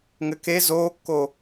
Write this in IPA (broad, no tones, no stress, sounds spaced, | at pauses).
ŋ ɘ k e z oː kː o